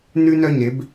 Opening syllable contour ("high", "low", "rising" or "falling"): high